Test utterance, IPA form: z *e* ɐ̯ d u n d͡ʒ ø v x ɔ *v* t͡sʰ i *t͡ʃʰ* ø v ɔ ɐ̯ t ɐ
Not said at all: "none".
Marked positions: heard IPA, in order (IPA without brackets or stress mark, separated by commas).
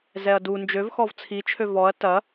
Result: ɛ, v, t͡ʃʰ